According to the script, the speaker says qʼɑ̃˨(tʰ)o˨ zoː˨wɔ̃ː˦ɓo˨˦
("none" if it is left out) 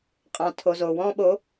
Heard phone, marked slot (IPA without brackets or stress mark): tʰ